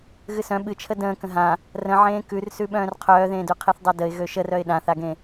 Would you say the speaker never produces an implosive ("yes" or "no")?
no